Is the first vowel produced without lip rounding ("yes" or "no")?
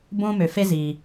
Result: no